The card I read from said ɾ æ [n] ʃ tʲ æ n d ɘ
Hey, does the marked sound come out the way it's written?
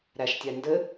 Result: no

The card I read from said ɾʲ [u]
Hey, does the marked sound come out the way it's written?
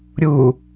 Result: yes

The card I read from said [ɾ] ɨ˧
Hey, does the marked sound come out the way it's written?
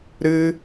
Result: yes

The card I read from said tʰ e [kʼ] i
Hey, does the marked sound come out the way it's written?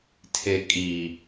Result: yes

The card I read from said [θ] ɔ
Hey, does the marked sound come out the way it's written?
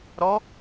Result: no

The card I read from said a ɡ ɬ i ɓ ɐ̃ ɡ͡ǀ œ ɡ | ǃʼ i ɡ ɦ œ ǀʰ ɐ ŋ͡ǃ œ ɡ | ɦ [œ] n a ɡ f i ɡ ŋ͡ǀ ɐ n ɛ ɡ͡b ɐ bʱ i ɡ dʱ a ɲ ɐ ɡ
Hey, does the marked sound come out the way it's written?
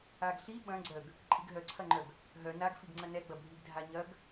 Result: yes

